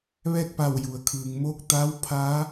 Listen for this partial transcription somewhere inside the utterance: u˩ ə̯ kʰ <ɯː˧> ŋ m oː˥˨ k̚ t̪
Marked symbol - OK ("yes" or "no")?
no